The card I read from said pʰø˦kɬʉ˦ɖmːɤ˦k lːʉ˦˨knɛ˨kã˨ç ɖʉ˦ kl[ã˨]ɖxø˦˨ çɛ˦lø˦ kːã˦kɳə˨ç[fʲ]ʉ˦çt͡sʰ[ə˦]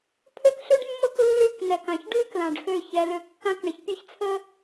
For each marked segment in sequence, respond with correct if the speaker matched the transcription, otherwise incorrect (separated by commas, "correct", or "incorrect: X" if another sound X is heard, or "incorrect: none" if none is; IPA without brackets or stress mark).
correct, incorrect: pʲ, correct